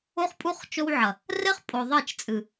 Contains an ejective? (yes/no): yes